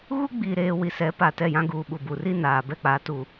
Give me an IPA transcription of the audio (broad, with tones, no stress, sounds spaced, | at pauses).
ɣ u˦ ɡ͡b i˨ ɾ eː˨ w i˨ s ɛ˨˦ p a˨ t ɛ˦˨ j ã˦ ɡ uː˨ ɓ u˨ b u˨ r i˦ n aː˨ b ɛ˦ k͡p a˨˦ t u˨